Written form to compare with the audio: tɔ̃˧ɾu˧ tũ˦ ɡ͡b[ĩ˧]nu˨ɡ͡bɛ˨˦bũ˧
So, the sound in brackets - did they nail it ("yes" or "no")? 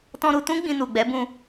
yes